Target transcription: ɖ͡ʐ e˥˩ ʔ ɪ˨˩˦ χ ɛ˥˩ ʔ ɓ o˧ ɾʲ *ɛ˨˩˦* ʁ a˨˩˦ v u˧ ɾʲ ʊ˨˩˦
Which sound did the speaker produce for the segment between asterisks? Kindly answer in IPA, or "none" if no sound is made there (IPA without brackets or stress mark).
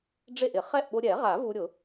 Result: ɛ˨˩˦